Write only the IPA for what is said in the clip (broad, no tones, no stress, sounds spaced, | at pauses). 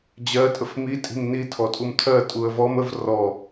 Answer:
d͡ʑ ɜ tʼ ə f m i tʼ i̤ m n i tʰ ɔ tʼ u m tʰ ɜ tʼ u ə̯ v ɔ m ə v r ɔ